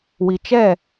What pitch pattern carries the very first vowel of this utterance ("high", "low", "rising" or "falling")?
low